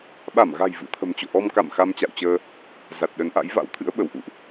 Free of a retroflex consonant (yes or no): yes